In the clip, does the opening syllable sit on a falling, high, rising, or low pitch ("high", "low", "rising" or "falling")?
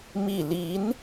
falling